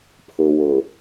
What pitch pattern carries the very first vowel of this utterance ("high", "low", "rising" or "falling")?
low